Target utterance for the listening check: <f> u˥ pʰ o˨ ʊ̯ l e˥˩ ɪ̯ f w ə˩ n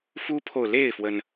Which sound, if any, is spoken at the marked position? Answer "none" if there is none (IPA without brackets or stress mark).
f